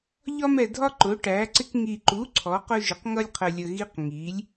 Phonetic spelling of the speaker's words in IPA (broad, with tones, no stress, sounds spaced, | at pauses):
ʎ ɒ˦ m ɛ˨ dʱ ɒ˦ ǃ ʊ˩˥ ʈ æ˩˥ ǀ ɪ˦ k ŋ i˨ ǃ u˩˥ ǀʰ ɔ˩˥ q ʊ˦ ʒ ɪ˩˥ q ŋ ʌ˦ lʲ qʰ ə˨ lʲ ə˨ ɣ i˦ q ŋ i˩˥ lʲ